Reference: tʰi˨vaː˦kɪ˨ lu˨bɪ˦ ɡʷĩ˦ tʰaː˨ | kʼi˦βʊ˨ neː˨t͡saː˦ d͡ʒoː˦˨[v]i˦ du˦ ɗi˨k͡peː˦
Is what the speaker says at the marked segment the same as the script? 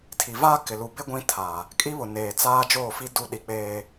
no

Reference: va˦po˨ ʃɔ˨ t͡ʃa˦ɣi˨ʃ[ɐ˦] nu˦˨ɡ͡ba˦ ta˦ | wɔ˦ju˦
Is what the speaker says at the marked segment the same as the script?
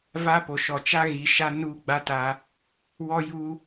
no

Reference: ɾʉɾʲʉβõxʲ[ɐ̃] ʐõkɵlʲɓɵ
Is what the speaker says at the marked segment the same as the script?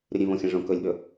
yes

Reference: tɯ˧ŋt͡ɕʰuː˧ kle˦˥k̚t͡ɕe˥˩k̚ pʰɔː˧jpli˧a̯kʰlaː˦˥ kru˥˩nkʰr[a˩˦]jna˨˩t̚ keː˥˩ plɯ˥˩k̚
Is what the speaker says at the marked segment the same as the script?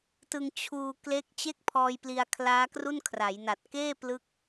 yes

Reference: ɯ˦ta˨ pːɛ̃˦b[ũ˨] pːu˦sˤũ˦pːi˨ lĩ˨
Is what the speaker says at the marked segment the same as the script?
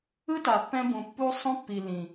yes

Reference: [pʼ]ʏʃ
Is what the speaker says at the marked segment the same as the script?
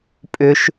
yes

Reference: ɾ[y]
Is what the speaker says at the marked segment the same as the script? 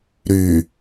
yes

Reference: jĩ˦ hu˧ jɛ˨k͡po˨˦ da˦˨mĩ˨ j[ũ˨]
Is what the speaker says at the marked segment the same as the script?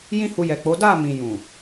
yes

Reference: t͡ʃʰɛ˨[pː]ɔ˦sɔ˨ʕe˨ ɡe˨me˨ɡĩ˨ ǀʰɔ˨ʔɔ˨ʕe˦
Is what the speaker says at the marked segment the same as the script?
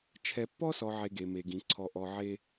yes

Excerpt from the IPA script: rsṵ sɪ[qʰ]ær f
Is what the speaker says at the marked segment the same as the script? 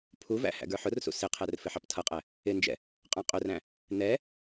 yes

